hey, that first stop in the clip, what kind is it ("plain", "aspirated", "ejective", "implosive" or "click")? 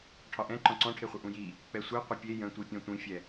aspirated